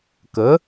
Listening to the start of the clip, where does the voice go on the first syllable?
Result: rising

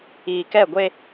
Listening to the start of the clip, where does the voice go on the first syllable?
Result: low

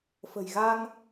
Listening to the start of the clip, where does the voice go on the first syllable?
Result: low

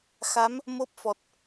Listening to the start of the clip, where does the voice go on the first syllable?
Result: rising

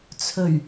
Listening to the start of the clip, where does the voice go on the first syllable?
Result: low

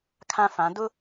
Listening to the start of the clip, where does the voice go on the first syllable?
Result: high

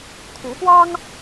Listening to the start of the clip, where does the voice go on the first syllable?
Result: rising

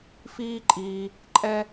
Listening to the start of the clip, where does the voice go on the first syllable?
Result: high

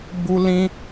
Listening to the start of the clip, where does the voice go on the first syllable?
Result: high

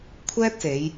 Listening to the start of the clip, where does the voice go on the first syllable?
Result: high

